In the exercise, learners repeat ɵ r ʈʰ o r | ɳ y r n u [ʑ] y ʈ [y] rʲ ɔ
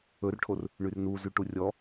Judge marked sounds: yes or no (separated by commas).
no, no